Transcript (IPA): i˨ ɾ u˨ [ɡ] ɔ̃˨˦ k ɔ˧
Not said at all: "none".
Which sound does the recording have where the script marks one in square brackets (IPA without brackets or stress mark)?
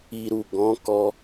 ɡ